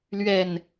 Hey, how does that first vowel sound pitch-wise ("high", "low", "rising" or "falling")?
falling